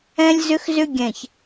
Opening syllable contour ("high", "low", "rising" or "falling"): high